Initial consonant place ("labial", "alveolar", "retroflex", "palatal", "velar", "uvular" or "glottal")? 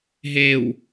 glottal